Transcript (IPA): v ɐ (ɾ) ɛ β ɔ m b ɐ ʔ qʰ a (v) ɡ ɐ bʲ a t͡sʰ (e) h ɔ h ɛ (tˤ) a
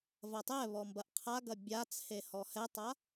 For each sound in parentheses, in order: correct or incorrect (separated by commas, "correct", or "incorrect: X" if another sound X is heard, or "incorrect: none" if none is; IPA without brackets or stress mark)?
incorrect: tˤ, incorrect: none, correct, correct